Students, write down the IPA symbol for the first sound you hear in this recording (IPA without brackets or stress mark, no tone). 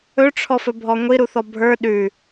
ɵ